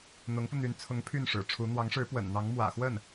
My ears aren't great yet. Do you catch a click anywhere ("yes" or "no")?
no